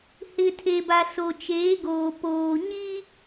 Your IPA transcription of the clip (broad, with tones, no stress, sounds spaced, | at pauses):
h ɪ˨ tʰ e˨ b a˨ s o˨ t͡ʃ eː˨˦ ɡ oː˨ p oː˨ ɲ i˦